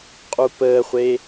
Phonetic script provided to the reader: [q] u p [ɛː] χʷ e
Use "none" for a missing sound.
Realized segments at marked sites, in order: qʼ, əː

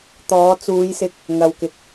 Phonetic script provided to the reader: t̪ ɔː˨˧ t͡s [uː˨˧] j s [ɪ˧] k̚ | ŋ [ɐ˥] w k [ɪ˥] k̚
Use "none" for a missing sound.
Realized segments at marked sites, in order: uː˨˧, ɪ˧, ɐ˨, ɪ˨

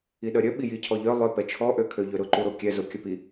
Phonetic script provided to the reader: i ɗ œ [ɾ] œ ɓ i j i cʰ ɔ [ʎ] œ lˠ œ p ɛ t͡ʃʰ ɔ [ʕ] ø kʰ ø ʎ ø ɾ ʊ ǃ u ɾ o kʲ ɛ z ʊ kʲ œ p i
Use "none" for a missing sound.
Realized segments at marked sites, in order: ɾʲ, ʎ, ʔ

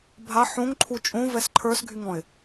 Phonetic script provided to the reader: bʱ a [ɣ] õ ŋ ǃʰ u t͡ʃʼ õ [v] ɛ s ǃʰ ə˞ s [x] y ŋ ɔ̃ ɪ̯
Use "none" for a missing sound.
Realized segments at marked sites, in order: ħ, v, ɡʱ

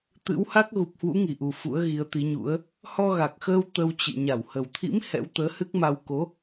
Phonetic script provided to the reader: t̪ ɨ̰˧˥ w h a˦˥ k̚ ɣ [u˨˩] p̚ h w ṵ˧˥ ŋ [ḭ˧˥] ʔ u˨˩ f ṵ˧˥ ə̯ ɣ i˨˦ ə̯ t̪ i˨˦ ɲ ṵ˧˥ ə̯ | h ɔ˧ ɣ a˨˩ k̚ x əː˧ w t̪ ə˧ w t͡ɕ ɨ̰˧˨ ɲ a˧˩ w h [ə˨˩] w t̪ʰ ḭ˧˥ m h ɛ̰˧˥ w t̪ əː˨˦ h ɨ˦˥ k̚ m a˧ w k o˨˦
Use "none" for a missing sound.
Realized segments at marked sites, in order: u˨˩, i˧˩, ə˨˩

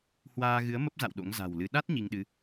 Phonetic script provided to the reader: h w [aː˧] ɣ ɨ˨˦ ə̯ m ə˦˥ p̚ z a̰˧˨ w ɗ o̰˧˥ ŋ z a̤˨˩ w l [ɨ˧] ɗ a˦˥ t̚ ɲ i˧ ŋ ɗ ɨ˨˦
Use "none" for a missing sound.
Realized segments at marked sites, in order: aː˧, ɨ˨˦

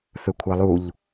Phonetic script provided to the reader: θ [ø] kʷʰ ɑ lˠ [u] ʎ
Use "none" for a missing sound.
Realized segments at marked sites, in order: ø, u

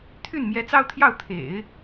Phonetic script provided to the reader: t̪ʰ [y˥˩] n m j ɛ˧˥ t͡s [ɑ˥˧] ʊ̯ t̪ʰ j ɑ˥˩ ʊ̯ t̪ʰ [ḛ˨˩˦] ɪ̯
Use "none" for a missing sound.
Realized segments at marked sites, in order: y˥˩, ɑ˥˧, ḛ˨˩˦

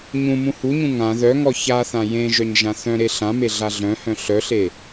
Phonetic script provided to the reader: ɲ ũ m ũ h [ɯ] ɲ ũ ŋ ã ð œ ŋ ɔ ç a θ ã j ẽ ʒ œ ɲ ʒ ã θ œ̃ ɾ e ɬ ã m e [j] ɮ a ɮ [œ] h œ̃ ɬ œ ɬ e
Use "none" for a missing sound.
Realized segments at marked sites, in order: u, none, œ̃

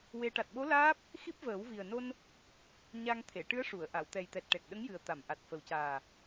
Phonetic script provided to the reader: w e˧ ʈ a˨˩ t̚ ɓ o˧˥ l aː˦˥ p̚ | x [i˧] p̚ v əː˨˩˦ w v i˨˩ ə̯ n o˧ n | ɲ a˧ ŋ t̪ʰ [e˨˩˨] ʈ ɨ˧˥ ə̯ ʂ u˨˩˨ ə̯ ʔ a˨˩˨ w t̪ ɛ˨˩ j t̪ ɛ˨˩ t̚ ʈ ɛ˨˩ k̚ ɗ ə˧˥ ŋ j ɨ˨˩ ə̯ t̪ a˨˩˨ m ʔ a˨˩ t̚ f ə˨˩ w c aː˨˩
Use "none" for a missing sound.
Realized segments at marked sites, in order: i˦˥, e˨˩˨

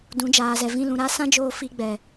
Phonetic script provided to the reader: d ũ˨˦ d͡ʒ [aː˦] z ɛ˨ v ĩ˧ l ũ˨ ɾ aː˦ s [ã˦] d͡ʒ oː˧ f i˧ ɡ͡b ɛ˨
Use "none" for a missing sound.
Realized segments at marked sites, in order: aː˨, ã˦

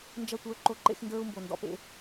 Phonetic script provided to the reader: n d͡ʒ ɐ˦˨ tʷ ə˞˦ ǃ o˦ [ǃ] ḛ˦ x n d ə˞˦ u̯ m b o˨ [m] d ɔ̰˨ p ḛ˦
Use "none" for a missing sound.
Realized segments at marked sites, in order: ǃ, n

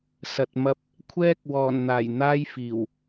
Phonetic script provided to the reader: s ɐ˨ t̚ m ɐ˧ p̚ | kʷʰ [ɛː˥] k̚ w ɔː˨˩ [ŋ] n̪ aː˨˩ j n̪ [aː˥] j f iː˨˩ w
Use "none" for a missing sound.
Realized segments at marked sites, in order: ɛː˥, n, aː˥

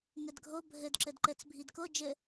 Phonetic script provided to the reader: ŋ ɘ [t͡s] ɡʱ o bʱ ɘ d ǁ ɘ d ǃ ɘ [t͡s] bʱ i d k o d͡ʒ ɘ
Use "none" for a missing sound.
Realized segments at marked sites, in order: d, t͡s

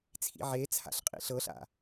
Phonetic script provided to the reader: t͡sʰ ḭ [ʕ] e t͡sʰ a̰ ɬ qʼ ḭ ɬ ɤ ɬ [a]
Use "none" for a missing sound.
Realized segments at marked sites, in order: ʕ, a̰

